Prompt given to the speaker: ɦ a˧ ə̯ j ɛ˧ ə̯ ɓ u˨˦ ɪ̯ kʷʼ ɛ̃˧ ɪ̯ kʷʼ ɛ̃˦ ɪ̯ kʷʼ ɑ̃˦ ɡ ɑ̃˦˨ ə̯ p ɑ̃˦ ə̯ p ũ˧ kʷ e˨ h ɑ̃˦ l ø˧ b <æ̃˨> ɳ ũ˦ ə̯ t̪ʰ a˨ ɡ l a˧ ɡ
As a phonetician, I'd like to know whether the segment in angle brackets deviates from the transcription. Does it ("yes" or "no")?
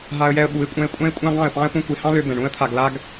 yes